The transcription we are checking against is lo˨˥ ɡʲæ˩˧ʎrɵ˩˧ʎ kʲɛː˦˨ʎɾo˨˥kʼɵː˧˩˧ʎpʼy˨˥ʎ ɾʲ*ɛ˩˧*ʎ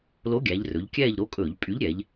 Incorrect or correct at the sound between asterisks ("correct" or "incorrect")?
correct